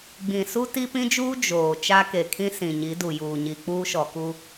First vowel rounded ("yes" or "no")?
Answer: no